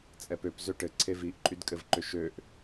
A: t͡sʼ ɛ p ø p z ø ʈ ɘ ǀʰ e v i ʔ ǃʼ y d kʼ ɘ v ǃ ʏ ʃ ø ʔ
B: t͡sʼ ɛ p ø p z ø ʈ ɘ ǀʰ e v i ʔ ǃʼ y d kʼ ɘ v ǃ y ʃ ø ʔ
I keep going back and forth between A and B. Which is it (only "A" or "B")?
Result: A